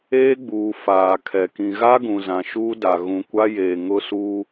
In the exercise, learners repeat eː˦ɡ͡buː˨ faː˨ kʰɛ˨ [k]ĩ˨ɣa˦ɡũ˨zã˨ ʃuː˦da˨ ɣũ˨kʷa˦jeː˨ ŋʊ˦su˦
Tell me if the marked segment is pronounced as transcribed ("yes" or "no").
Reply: yes